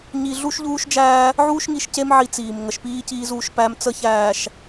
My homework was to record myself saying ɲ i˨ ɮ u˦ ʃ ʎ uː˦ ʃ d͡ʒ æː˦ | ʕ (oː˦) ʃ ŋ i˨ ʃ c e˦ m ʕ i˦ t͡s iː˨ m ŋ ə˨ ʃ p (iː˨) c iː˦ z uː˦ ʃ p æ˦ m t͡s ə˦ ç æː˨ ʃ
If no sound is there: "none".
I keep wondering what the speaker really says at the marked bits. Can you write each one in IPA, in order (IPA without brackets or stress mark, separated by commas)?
uː˦, iː˦